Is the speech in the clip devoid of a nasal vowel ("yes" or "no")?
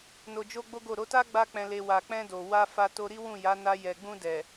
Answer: no